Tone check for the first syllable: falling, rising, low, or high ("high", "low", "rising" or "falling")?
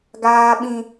high